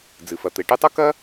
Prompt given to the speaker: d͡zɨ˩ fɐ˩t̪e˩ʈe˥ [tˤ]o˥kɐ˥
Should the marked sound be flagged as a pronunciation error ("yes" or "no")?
no